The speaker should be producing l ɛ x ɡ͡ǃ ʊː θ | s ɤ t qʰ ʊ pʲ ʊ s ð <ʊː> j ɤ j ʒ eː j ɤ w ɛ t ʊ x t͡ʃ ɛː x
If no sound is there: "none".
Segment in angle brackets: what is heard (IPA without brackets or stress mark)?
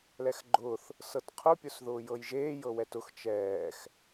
ʊː